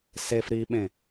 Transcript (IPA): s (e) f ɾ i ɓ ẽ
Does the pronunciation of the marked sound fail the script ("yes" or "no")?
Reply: no